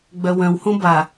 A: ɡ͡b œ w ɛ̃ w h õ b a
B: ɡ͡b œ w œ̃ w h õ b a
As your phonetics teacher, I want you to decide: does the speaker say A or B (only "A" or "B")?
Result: B